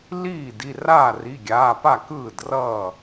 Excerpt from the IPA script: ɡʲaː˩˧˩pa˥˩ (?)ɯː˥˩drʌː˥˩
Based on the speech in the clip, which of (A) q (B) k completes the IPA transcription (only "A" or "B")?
B